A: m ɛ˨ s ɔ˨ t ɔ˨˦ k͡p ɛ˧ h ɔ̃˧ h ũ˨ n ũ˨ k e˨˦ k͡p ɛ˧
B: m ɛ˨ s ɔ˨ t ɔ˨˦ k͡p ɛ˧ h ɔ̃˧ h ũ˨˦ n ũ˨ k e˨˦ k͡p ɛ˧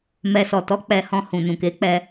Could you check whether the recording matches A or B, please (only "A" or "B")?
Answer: A